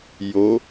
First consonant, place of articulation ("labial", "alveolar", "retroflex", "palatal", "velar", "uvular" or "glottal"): palatal